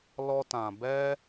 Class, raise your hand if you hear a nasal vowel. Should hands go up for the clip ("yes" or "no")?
yes